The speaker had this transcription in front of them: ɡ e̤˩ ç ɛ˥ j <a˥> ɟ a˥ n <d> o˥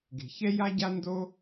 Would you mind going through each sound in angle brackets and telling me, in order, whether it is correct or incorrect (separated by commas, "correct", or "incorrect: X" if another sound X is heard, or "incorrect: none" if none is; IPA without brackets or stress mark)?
correct, correct